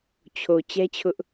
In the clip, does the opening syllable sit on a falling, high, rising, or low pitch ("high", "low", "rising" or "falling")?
low